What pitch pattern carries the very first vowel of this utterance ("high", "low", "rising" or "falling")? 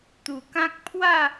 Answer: low